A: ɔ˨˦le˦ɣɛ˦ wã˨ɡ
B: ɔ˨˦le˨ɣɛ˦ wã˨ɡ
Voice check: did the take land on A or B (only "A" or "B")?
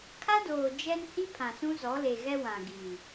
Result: B